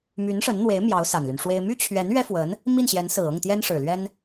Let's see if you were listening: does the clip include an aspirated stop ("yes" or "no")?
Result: yes